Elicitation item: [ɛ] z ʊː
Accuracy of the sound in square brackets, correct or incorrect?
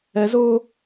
correct